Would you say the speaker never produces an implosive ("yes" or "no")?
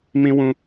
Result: yes